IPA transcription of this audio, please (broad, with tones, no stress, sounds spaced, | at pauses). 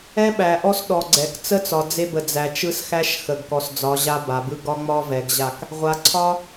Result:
ɛ˦ ɓ æ˨ ʔ ɔ˦ s ɗ ɔ˨ ɡ͡ǀ ɛ˨ k t͡s ə˦ t͡s ɒ˨ d͡z e˦ b ə˨ d͡z æ˨ t͡ʃ ɯ˦ s x æ˦ ʃ x ə˨ ɡ k ɔ˨ s d͡z ɒ˨˦ ʑ a˦ b a˨ b ɯ˦ ɡ ɒ˦ ŋ͡m ɒ˦ v ɛ˨ ɡ ʑ a˦˨ k | ʁʷ a˨ ǀʰ ɒ˦